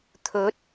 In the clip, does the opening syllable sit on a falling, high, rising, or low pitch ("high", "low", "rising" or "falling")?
rising